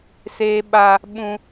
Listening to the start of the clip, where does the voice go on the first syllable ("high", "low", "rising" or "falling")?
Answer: high